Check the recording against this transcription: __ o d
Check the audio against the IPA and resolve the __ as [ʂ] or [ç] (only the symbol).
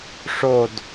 ʂ